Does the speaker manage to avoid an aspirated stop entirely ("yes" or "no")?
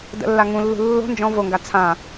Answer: no